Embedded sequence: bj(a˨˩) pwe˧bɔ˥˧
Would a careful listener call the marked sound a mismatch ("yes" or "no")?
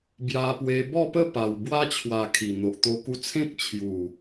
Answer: yes